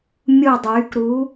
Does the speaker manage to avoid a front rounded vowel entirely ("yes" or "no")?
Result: no